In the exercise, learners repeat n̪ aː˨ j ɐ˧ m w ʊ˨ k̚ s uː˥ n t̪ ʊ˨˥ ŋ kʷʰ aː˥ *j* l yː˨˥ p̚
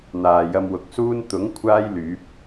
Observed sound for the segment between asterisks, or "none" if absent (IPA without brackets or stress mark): j